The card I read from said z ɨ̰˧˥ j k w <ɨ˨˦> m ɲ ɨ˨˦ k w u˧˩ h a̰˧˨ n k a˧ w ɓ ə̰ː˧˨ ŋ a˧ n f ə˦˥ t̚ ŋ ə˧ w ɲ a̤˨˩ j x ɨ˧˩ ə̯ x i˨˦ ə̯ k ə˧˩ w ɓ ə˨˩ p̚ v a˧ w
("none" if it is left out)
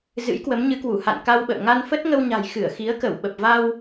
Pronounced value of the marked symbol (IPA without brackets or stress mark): ə˨˦